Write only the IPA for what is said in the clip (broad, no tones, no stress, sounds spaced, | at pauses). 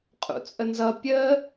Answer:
qʼ ṵ t͡sʼ ə n z ʌ pʲ ə